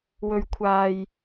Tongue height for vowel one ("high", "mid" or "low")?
mid